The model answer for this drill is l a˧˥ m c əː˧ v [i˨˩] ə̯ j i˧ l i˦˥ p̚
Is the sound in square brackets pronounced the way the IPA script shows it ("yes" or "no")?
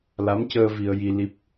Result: no